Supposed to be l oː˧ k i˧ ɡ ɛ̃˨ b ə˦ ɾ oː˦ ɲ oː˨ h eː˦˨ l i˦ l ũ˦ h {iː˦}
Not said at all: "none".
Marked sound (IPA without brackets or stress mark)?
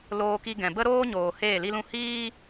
iː˦